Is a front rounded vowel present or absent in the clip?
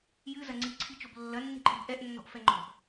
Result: absent